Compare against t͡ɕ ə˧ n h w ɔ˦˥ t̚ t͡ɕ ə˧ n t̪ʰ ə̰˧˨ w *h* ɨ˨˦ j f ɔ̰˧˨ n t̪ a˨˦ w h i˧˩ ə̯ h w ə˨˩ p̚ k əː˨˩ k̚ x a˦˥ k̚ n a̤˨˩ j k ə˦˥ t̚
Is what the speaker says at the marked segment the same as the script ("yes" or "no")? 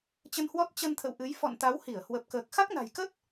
no